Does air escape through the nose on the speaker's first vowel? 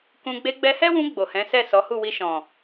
yes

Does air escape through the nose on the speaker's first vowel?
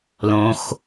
yes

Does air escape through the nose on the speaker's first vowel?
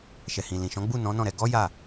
no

